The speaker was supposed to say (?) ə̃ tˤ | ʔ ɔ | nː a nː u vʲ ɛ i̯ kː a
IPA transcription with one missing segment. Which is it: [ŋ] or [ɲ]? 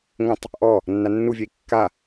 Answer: ŋ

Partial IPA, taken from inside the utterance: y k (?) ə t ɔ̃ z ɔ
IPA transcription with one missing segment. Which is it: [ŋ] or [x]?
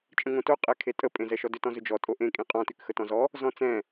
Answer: x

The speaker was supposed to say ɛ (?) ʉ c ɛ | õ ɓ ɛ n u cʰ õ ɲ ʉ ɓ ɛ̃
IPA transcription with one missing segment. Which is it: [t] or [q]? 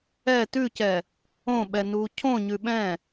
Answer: t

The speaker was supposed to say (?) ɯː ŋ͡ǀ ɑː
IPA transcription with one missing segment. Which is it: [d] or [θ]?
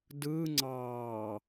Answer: d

